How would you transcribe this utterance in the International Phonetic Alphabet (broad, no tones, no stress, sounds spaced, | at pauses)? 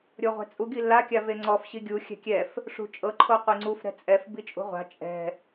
ɾʲ o ʁʷ ɛ̤ t͡sʼ u ɡ i lː a kʲ a v e ŋ͡ǀ ɔ f ɕ i ɡʲ u xʲ ɛ̤ kʲ ɛ f | ʂ ṳ t͡ʃʼ ɤ ǃʰ o qʷ i ŋ͡ǀ u f ɾ ɛ̤ t͡sʼ ɛ f b i t͡ʃʼ ṳ ʁʷ a̤ t͡ʃʼ ɛ̤